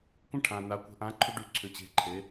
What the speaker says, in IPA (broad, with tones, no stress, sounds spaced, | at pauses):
kʷ ə̃˦˥ ʈʰ ã˨ n a˨˥ kʷ ə̤˨˥ ʔ ã˨˥ ǃʰ ʏ˦˥ ɖ ʉ˨˥ ǀʰ ʏ˨ t͡ɕ e̤˨˥ ǃʰ e˨˥